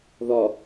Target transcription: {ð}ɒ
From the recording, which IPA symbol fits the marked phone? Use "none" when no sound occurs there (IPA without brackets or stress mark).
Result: ð